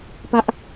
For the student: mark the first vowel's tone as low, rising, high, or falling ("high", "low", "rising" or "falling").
high